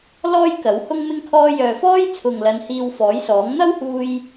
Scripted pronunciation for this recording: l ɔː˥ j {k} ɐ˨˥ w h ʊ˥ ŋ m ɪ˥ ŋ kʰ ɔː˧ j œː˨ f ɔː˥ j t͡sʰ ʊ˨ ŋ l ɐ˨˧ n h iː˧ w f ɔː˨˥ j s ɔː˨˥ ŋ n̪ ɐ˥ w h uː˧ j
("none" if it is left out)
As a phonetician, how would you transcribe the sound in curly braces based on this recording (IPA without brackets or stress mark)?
k